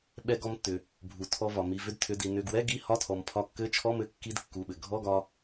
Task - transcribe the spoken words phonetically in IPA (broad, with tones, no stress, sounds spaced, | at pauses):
ɓ ɛ˧ ɡ ɔ˧ m tː ʏ˩ | bʱ u˩ tʰ ɔ˧ v ɒ˩ m i˩˧˩ v ʏ˧ d tʰ ʏ˩˧˩ d i˩ n ʏ˩˧˩ ɡ w ɛ˧˥˧ ɡ i˧˥˧ h ɒ˧˥˧ tʰ ɔ˩ m pʰ ɒ˧ kː ɘ˧˥˧ t͡ʃʰ ɔ˧˥˧ m ɘ˧ kː i˧˥˧ d kː u˩˧˩ ɓ ɘ˩ ɡʱ ɔ˧˥˧ ɡ ɒ˧